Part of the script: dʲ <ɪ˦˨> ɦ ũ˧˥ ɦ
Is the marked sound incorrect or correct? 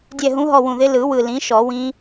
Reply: incorrect